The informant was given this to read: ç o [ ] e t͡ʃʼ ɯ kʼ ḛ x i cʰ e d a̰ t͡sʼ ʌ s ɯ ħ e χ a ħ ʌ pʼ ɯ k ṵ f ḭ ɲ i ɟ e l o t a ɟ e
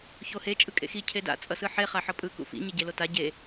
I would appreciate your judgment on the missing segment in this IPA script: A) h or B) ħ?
A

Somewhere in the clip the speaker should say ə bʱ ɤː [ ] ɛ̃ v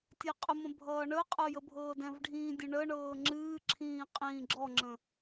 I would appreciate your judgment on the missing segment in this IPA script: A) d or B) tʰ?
A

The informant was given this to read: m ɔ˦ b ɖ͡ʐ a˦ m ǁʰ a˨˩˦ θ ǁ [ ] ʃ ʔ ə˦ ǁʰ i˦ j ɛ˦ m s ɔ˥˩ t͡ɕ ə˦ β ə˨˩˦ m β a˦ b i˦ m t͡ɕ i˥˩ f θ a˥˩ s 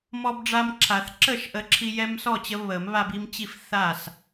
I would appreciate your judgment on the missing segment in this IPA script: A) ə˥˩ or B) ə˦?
A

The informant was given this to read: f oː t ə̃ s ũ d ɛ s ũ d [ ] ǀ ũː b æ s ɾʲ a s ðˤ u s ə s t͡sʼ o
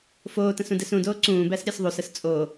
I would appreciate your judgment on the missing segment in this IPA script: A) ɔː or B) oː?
B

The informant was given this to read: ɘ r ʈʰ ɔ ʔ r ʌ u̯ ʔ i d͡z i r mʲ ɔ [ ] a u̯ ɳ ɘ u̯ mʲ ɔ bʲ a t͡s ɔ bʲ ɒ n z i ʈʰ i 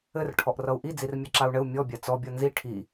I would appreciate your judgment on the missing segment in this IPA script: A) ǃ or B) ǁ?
B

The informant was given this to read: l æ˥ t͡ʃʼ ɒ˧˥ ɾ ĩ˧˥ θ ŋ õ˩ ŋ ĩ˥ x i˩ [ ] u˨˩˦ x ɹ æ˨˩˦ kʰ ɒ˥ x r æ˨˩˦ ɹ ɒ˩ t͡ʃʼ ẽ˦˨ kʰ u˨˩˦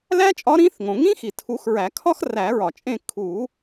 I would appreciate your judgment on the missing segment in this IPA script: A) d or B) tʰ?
B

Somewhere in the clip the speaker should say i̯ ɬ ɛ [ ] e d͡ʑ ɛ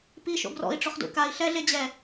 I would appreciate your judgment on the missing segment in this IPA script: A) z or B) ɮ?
B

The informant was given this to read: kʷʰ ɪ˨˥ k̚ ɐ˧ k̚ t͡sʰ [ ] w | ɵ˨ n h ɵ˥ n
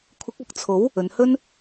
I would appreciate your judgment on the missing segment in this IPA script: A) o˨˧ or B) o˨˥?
B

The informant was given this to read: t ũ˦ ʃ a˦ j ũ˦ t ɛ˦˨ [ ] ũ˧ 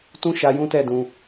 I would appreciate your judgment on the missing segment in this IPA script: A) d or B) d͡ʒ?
A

